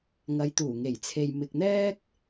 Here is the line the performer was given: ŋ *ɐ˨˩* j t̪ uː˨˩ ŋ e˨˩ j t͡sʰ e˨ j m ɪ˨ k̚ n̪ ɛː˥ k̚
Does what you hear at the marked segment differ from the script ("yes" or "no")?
yes